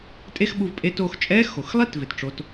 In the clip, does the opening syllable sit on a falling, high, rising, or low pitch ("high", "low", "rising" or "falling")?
high